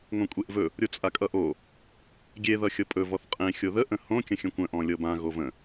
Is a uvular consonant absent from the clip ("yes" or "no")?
no